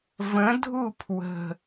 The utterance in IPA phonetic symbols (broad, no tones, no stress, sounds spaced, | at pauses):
v ə̃ dʱ u pʰ w ə̤